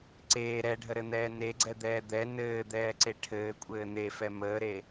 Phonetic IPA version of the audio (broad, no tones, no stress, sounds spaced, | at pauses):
ǀ eː ɾ ɛ ɖʱ ə ɾ ɘ n̪ ɛː n e ɡ͡ǀ ɛ d̪ ɛː d̪ ɛ n ɘː d̪ ɛː ǀ e ʈʰ ɘː kʷʼ ɘː n̪ e f ɛ m əː ɾ e